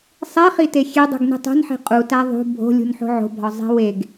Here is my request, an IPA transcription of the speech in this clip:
sˤ e χ i t e xʲ e dˤ ṳ ɡ n i̤ tˤ o̤ n ħ e̤ qʼ u t æ ðˤ ṳ bʱ o̤ lʲ ṳ n ħ o̤ ʕ o̤ bʱ ɒ zˤ e̤ w e ɡ

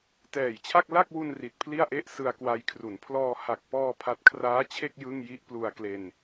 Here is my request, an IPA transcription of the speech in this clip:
t ɛː˨˩ j t͡ɕʰ a˥˩ k̚ l a˥˩ k̚ w u˧ n r i˨˩ t̚ pʰ l i˥˩ a̯ ʔ e˥˩ ʔ s ɯ˧ a̯ k w a˧ j kʰ r u˩˦ n pʰ l ɔː˧ h a˨˩ k̚ p ɔː˧ pʰ a˦˥ t̚ kʰ r aː˦˥ t͡ɕʰ e˥˩ k̚ j ɯ˥˩ ŋ j i˦˥ ʔ p l u˧ a̯ k l e˧ n

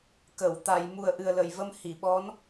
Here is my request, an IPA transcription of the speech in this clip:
k ə˨˩˨ w t̪ a˨˩˨ j m u˨˩ ə̯ ʔ ɨ˨˩ ə̯ l ə˨˩˨ j v ə˧ m h i˨˩˨ ɓ ɔ˧˥ n

